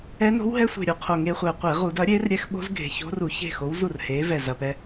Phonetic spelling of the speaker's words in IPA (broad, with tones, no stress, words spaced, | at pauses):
ɛ˦˥ no̤˦˥wɦɛ˦˥sʷe̤˨˩ ɾʲu˧qʰo˨˩ŋeː˧χʷɛː˨˩ qʷe˧˩˧ʁu˧˩˧dɐː˨˥ɾʲeː˦˥r ɾʲɛ˦˥xɓo̤˦˥zɡʱe̤˨˩ ço̤˦˥ru˧˩˧ çe̤˥˨xo˨˥w zu˥˨rheː˨˥ vɛ˨˩zɐ˨˩pɛ˧